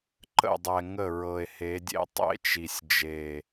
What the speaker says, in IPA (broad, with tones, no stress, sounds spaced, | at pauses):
ǃ ə̰˦˨ dˤ ɛ˨ ŋ ə˦˨ ɹ ɤ˨ e̯ h e˨˦ dʲ ḛ˦ tˤ ḛ˦ t͡ʃ i˨ sʲ d͡ʒ e˨